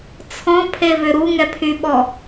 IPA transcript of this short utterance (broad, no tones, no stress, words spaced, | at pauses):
t͡sʰɔ̃pʰevʏ ɾuŋɛpʰyɓɔ